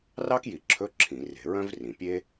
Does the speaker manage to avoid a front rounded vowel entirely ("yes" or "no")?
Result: no